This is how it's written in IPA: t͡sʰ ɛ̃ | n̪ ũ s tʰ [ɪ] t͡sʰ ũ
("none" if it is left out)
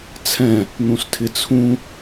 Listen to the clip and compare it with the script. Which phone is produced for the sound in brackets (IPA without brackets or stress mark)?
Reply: ɪ